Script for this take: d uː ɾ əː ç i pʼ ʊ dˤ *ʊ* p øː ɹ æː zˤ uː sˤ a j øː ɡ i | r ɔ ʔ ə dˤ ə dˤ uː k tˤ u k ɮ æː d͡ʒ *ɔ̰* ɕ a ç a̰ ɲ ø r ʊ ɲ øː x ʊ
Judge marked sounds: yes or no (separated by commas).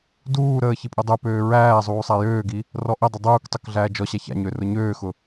yes, no